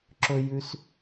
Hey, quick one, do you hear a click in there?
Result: yes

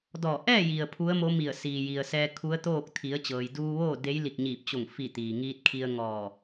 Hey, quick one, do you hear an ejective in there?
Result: no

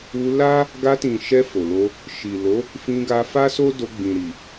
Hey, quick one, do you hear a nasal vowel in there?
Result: yes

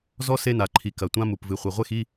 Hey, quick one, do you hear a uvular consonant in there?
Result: yes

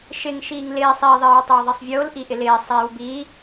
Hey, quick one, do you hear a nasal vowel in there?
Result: no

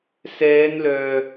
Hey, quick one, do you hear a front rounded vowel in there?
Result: yes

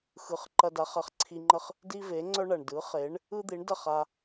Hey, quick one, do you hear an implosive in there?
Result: no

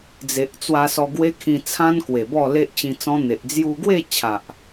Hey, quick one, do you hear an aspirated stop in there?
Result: yes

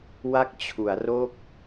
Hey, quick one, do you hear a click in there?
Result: no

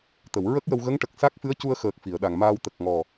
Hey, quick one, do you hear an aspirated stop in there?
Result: no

